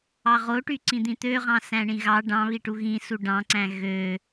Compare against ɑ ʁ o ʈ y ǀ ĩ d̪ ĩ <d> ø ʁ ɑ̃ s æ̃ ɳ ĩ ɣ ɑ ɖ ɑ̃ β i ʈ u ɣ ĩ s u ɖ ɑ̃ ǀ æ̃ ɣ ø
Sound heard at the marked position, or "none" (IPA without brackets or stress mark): t̪